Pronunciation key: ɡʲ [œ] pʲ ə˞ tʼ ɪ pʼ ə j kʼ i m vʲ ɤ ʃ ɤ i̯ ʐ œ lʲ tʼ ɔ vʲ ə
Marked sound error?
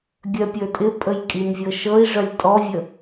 no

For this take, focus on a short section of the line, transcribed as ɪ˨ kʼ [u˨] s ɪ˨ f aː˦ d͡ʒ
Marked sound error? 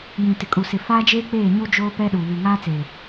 no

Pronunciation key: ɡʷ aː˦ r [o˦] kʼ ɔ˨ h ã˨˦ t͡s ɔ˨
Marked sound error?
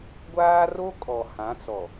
no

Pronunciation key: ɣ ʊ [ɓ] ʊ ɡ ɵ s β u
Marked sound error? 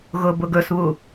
yes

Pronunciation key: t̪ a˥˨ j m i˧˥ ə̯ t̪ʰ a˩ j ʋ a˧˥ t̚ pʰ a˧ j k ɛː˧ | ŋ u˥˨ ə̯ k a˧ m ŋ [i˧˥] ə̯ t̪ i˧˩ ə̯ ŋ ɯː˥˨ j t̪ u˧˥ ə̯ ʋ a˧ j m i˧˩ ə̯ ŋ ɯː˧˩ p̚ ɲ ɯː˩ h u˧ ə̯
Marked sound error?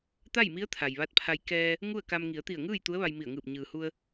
yes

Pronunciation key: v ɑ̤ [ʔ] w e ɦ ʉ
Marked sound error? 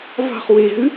yes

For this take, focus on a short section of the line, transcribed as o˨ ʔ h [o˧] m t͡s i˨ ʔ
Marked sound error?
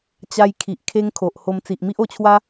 no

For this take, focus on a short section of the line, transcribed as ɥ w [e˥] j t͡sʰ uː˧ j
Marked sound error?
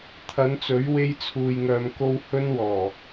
no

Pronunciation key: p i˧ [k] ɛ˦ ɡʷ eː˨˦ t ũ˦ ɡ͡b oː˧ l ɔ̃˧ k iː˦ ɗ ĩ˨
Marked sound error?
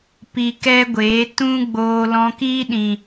no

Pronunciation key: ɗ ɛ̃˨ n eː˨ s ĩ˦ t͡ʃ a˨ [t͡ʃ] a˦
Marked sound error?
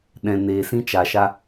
yes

